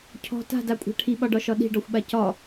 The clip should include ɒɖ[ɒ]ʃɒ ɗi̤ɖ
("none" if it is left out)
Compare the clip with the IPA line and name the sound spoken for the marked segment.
ɒ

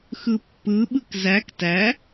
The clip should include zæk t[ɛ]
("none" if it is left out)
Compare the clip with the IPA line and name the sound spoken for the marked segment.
æ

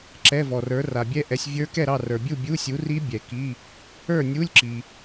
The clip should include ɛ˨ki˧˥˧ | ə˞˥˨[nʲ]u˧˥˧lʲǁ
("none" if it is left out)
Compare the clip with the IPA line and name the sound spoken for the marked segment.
nʲ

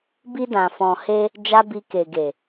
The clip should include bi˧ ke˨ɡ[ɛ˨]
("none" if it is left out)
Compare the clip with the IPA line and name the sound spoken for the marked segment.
e˨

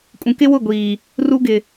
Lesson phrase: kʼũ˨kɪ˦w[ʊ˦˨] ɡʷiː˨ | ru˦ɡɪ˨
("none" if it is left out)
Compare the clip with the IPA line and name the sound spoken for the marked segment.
ʊ˦˨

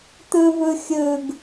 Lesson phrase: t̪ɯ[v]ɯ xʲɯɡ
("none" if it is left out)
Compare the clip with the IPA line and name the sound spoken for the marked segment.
v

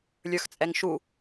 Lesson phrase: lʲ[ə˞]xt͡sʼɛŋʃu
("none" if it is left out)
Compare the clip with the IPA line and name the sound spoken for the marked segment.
ə˞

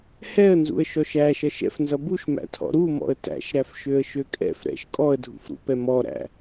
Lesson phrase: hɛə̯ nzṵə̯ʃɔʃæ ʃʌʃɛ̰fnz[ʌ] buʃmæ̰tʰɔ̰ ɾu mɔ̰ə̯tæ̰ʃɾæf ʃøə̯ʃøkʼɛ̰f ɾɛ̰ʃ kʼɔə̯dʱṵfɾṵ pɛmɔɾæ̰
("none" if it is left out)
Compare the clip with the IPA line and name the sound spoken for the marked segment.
ʌ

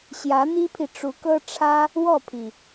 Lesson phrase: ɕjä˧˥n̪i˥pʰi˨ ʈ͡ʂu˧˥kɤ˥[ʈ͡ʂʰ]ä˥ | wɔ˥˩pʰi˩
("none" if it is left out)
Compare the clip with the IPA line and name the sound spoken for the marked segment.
ʈ͡ʂʰ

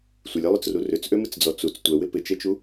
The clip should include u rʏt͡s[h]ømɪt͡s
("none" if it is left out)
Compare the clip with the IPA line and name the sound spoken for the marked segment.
ʔ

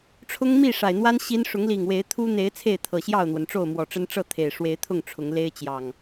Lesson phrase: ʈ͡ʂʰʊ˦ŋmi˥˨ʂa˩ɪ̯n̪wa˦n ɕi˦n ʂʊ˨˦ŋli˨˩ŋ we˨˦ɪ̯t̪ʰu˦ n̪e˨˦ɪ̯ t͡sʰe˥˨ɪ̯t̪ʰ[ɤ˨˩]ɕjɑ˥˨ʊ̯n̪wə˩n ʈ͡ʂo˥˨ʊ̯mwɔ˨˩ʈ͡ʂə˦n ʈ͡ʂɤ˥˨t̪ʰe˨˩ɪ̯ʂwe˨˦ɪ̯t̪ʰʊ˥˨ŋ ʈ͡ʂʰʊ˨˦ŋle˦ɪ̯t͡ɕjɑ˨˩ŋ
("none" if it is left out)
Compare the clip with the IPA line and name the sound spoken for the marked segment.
ɤ˨˩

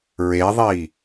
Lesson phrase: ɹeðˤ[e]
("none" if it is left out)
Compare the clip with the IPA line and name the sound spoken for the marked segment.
i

